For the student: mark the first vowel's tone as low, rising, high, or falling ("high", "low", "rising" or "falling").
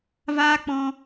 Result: high